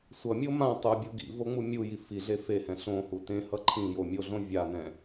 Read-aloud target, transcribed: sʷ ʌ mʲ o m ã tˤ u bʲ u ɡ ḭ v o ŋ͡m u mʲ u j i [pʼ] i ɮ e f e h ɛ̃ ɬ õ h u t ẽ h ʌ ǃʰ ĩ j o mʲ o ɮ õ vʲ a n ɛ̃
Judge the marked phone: incorrect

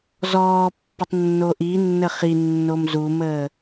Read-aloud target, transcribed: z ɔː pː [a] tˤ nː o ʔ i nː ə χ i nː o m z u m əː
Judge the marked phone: incorrect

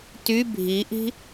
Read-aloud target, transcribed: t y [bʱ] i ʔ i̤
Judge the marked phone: correct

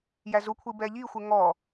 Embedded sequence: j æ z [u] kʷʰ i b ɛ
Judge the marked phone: correct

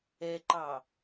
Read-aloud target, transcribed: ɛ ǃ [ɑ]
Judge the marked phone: correct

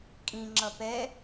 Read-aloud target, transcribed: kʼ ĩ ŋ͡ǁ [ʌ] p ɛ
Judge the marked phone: correct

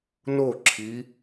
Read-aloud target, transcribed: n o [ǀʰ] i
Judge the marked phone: incorrect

